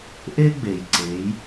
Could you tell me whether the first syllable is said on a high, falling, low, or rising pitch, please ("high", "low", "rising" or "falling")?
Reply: high